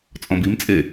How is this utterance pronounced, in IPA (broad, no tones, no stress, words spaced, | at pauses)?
t͡sʼɔ̃bimt͡sʼe